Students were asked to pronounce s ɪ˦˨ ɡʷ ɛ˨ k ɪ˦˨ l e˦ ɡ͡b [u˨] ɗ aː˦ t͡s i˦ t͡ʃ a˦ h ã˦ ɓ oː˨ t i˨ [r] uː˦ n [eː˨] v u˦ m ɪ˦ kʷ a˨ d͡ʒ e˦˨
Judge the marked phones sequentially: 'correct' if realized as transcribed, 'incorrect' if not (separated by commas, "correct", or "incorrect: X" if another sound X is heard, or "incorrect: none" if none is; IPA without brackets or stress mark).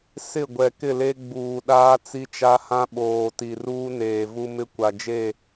incorrect: uː˨, correct, correct